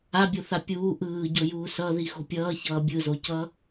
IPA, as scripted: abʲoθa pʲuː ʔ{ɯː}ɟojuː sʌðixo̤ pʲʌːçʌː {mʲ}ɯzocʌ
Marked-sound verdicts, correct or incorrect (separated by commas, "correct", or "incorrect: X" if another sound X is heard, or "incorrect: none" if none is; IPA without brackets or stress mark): correct, incorrect: bʲ